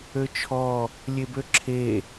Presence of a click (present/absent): present